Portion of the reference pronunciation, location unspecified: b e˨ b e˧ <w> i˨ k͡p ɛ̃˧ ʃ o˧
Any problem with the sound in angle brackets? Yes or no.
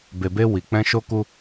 no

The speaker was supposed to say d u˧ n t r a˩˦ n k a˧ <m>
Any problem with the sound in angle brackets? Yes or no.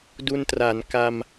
no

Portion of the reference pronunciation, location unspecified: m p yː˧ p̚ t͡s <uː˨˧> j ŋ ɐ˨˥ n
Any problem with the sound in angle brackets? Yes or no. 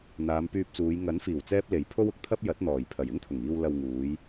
no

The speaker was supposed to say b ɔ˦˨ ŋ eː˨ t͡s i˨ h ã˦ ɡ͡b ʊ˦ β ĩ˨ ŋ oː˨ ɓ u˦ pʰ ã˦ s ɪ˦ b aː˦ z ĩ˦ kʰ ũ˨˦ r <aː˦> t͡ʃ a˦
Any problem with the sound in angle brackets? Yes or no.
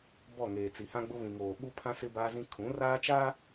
no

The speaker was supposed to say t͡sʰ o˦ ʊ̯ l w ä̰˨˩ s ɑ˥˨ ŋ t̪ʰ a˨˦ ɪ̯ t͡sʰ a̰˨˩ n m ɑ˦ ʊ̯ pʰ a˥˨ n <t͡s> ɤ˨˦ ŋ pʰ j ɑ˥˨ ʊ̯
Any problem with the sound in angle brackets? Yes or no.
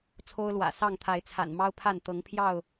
yes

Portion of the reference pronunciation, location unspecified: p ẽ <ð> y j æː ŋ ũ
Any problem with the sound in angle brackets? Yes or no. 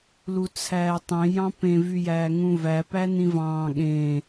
yes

